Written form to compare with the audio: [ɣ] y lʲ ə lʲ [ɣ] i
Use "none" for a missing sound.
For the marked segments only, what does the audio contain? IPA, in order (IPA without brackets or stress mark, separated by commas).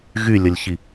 ɣ, ç